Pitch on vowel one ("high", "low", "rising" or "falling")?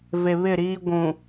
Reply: low